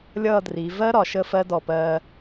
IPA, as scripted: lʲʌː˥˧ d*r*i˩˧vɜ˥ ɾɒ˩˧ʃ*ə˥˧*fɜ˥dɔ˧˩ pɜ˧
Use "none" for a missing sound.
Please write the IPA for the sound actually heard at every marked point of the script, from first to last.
r, ə˥˧

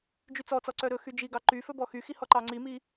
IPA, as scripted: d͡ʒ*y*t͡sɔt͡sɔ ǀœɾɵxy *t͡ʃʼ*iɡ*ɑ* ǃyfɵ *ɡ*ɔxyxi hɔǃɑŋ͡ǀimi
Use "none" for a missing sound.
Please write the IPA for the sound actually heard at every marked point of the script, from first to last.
y, d͡ʒ, ɑ, b

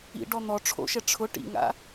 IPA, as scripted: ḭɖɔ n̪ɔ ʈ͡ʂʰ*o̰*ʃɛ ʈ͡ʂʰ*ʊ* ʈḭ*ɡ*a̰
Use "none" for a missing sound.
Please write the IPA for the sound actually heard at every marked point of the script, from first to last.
o̰, ʊ, ŋ

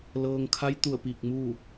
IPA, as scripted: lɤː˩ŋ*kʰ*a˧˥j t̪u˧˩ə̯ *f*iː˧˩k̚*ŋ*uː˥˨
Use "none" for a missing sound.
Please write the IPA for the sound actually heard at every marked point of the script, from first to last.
kʰ, p, m

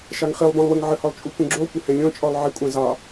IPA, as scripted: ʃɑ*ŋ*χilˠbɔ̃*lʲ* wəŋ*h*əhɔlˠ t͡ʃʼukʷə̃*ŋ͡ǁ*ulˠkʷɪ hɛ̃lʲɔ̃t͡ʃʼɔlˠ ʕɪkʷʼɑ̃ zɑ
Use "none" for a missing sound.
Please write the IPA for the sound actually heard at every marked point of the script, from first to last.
ŋ, lˠ, ʕ, ɡ͡ǁ

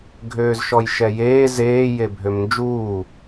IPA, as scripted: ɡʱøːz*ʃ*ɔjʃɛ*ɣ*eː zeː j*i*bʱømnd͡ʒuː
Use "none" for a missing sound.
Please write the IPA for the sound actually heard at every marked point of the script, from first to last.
ʃ, j, e

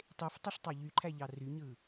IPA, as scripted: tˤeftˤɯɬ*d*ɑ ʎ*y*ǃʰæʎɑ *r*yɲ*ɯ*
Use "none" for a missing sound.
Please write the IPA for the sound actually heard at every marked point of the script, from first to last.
tˤ, y, r, ɯ

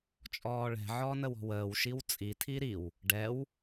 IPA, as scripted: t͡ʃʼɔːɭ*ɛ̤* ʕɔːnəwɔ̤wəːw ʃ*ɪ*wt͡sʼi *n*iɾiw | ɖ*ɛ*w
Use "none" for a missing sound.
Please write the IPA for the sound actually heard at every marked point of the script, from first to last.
ɛ̤, i, tʰ, ɛ

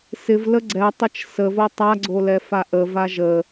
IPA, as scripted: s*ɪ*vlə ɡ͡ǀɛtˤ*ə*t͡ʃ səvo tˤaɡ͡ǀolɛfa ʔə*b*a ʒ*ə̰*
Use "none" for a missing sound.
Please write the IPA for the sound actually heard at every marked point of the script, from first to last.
ɪ, ə, v, ə

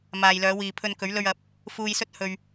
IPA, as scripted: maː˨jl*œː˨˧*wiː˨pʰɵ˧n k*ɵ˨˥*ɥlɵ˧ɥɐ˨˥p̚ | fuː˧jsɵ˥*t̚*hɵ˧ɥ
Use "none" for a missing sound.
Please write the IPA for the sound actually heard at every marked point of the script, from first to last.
œː˨˧, ɵ˨˥, t̚

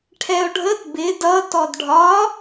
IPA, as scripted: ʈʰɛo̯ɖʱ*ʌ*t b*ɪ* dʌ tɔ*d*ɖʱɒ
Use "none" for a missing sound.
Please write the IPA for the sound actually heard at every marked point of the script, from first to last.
ə, ɪ, d

